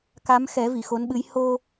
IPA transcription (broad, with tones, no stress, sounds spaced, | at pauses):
k a˧˥ m x ɛ˨˩˦ v i˨˩˨ x o˧˥ n ɓ ɨ˧˥ j h o˧